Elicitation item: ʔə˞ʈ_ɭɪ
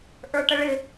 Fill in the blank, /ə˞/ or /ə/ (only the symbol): ə